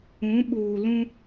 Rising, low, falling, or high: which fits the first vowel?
rising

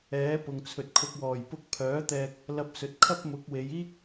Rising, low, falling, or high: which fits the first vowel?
rising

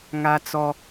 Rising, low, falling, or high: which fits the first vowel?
high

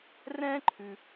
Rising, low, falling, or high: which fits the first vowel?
high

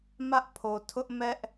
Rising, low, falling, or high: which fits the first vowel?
high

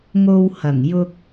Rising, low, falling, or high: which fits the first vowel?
high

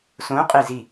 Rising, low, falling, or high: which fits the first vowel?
rising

